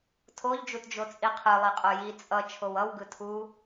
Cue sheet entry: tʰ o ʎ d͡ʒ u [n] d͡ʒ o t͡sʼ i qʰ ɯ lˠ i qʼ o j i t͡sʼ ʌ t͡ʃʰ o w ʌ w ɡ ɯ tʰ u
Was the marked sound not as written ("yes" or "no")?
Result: yes